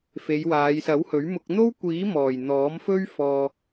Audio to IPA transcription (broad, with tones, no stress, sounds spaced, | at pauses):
f e˨˧ j w aː˨˧ j s ɐ˨˥ w h ɵ˨˥ ɥ m ʊ˧ k̚ n̪ o˥ w kʷ iː˨˥ m ɔː˨˩ j n̪ ɔː˨˥ m f ɵ˥ ɥ f ɔː˧